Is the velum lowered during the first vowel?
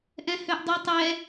yes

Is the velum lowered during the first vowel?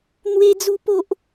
no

